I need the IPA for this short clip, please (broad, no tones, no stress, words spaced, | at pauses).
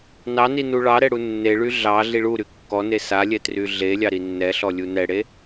nɑni nuɭɑɾɛ ɽunːeɭy ɮɑ ɮiɭuɾy kːɔne salʲɛ tryɮelʲɑ ɾinːɛɬɔ lʲunɛɽe